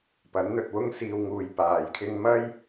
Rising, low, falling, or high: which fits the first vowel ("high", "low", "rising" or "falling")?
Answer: rising